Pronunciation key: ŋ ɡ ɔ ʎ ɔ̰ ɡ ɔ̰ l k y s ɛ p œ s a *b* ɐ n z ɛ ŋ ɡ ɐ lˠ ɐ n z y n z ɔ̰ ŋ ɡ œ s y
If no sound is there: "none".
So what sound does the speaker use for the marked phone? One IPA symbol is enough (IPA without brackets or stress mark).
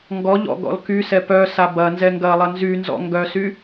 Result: b